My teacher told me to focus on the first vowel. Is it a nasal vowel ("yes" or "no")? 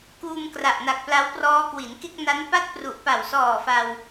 no